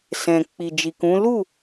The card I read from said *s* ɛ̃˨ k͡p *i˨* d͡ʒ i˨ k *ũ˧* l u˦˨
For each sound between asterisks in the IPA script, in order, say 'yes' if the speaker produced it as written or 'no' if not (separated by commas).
yes, yes, no